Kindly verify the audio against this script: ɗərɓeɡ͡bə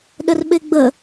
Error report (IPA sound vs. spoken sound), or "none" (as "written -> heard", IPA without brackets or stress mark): none